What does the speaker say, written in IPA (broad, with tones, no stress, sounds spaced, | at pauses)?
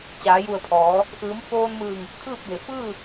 t͡ɕ aː˩˧ j u˧˩ ə̯ pʰ ɔː˩˧ | ʔ ɯː˩˧ m f oː˧ n m ɯː˧˩ ŋ | kʰ ɯː˥˨ p̚ b e˩ f ɯː˥˨